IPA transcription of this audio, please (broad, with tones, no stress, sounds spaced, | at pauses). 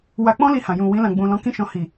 w a˧ k͡p ɔ̃˦ l i˧ h ã˨ j ũ˨ w ĩ˧ l ã˨ ɡ͡b ũ˨ l ɔ̃˨˦ k ĩ˦˨ ʃ ɔ̃˧ h i˨